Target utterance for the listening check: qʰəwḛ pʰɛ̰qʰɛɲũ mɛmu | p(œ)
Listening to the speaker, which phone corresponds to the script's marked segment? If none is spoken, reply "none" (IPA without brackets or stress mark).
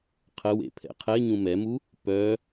œ